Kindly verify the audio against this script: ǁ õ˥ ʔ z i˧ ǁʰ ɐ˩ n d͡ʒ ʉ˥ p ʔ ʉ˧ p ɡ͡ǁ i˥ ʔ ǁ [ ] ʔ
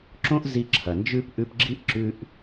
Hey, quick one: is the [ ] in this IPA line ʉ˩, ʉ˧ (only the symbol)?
ʉ˧